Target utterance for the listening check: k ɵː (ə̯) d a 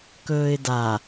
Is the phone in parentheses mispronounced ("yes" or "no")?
yes